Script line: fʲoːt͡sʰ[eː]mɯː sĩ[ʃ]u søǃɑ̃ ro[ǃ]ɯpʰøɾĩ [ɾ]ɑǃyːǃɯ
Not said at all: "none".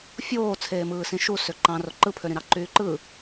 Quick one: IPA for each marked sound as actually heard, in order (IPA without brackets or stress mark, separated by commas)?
eː, ʃ, ǃ, ɾ